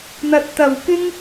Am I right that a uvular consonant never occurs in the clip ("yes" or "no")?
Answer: yes